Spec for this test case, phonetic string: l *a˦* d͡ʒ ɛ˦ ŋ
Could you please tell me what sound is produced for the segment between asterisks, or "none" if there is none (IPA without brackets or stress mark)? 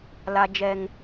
a˦